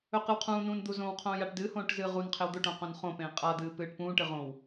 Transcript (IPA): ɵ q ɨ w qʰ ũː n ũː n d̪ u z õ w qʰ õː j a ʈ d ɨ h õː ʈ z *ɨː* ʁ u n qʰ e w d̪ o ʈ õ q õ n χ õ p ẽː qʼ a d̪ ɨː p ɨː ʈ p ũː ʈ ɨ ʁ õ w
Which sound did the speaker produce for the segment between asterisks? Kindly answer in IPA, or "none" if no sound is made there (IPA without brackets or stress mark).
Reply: ɨː